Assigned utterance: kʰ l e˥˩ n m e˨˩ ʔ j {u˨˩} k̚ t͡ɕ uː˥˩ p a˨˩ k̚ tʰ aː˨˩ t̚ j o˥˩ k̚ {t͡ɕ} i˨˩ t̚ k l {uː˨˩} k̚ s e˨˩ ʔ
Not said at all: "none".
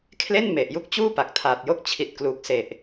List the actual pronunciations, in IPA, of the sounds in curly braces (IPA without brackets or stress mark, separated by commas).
u˥˩, t͡ɕʰ, uː˨˩